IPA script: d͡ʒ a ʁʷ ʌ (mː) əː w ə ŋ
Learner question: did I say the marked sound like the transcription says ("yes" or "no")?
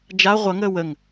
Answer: no